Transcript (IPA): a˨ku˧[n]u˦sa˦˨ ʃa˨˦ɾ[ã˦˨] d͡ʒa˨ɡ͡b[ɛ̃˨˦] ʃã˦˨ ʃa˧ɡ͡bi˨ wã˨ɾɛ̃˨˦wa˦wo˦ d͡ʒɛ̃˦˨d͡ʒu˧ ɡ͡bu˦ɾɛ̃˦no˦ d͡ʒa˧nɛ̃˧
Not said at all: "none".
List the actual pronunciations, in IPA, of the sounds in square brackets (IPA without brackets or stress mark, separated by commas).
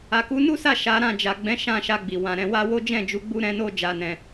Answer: n, ã˦˨, ɛ̃˨˦